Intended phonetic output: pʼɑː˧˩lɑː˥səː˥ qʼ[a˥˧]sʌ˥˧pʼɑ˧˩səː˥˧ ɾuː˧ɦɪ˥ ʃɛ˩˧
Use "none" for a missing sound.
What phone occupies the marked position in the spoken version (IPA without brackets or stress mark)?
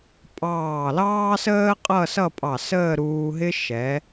ʌ˥˧